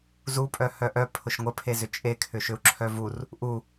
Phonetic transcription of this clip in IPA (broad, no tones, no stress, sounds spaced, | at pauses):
z u pʼ œ h œ ʔ œ pʰ ʊ ʃ ŋʷ ə pʰ e z ʏ t͡ʃʼ e kʰ ʏ ʃ ʏ u̯ ǁʰ œ v u r | ʔ u